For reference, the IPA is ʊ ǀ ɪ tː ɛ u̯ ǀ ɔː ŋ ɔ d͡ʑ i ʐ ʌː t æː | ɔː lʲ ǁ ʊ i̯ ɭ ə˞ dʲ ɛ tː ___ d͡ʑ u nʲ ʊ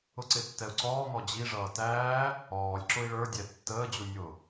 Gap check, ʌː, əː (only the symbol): əː